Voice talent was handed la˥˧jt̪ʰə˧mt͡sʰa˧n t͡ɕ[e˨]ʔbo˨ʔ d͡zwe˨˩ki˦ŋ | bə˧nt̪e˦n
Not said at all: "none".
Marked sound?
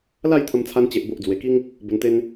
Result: e˨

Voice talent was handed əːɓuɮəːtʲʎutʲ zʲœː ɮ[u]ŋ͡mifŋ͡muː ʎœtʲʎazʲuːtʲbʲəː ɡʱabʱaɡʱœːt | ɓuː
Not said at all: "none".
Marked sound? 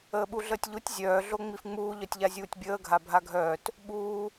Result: o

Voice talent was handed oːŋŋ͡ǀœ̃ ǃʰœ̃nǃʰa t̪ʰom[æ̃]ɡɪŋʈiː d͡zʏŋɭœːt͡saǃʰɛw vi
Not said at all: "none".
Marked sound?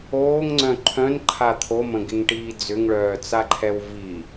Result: ə̃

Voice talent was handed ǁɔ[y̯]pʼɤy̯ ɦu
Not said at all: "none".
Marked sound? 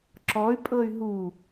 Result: y̯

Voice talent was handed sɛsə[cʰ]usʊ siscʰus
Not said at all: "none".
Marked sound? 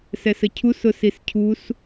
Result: cʰ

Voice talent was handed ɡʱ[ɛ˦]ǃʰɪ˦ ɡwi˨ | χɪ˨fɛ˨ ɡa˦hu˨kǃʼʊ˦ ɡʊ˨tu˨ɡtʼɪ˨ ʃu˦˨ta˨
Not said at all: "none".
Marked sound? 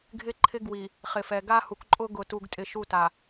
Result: ɪ˦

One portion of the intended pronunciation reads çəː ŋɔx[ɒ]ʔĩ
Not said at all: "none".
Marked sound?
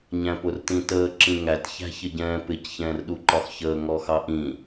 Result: ɑ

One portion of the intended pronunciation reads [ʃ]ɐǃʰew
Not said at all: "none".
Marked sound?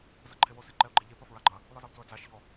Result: z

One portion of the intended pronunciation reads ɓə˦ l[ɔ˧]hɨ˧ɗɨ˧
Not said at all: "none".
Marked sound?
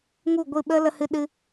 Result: ə˧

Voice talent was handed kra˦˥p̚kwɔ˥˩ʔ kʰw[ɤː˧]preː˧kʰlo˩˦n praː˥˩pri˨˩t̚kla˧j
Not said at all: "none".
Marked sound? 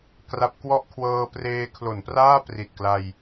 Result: ɤː˧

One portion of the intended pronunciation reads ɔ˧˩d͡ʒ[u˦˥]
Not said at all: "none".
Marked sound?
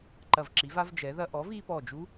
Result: u˦˥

